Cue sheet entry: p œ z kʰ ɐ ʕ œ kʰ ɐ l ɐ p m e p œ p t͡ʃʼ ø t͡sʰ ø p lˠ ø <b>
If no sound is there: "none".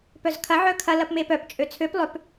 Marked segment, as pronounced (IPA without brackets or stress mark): p